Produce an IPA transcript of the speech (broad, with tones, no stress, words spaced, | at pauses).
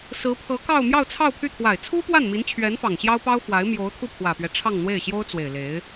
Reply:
sɹ̩˧˥pʰɤ˧˥kɑ˥˧ʊ̯ mjɑ˥˧ʊ̯t͡sʰɑ˥˧ʊ̯pʰy˥˩ t̪ʰwa˨˩ɪ̯t͡sʰu˥pwa˥˩n mi˧˥nt͡ɕʰɥɛ˧˥nfɑ˨˩ŋ ɕjɑ˥ʊ̯pɑ˥ʊ̯fwa˧˥ɪ̯ mjo˧˥ʊ̯t̪ʰu˥˩pʰwä˨˩pɥɛ˦ ʈ͡ʂʰɑ˥˧ŋn̪we˥˩ɪ̯ɕjo˥ʊ̯t͡swe˨˩ɪ̯ le˧˥ɪ̯